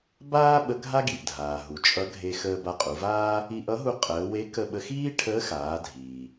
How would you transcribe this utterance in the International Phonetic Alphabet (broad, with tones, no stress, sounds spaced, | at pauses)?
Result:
b aː˥ ɓ ə˧˥ ɡʱ a˥ ɡ i˩ ʔ dʱ aː˩ ɦ u˩ t͡ʃʼ ʌ˧˥ ɡʱ e˧ x əː˧ b a˧ qʼ u˩˧ v aː˥ | i˧ ʔ ʌ˧˥ ɦ u˧ qʼ əː˩˧ w e˧˥ k ə˧ ɓ ə˧ x iː˥ ʈʰ əː˧˥ x aː˩˧ dʱ iː˩